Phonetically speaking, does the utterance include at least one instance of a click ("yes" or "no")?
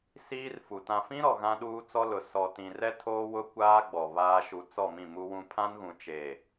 no